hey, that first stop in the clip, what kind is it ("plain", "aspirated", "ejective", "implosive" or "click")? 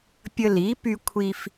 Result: plain